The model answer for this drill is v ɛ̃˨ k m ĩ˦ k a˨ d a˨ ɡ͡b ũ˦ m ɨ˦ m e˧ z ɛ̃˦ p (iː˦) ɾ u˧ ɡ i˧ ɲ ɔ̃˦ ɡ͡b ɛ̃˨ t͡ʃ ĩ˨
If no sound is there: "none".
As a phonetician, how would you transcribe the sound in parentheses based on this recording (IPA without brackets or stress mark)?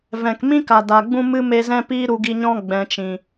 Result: iː˦